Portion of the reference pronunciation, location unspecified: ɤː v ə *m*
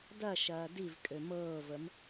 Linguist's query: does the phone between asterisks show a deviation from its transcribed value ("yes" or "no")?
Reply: no